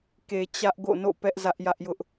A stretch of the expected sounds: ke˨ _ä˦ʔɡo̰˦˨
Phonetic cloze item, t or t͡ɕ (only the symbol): t͡ɕ